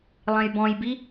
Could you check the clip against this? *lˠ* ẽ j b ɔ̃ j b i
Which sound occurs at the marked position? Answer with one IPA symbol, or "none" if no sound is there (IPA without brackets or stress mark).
lˠ